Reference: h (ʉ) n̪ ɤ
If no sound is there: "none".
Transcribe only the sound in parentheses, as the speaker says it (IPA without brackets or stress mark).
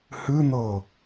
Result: ɨ